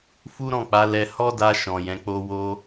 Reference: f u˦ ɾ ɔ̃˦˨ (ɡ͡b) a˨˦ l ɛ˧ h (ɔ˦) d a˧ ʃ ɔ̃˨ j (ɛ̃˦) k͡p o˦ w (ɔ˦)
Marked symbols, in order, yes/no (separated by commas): no, yes, no, no